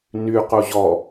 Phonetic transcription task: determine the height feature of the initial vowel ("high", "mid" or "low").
high